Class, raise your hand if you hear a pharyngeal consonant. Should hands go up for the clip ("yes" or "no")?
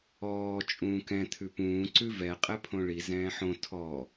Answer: yes